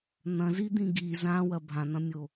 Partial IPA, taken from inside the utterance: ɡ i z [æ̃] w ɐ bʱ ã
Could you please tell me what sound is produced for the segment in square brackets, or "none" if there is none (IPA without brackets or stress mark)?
ã